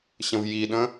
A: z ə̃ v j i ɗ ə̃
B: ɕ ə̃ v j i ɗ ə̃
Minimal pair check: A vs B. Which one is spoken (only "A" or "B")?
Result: B